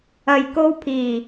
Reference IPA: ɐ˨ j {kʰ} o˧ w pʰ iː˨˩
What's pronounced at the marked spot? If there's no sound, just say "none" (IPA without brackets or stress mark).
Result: k